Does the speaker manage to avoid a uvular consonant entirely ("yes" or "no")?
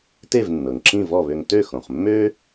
no